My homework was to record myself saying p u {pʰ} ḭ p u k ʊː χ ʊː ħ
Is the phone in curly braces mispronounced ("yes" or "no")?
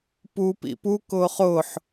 yes